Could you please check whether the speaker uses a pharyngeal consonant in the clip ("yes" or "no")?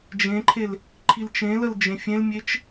no